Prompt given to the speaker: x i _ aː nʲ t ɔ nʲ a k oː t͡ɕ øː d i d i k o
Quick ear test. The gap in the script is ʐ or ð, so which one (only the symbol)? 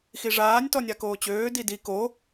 ʐ